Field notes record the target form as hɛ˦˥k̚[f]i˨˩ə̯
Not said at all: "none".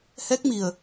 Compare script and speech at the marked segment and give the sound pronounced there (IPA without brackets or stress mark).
m